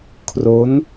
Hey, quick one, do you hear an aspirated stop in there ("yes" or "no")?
yes